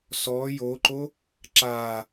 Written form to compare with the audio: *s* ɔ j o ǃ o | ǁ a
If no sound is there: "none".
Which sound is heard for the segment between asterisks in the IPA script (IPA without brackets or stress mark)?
s